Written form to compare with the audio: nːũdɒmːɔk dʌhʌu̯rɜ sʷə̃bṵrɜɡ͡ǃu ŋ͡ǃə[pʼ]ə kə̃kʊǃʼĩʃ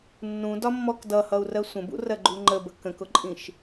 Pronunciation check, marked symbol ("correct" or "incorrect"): incorrect